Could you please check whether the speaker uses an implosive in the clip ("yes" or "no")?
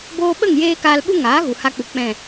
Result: yes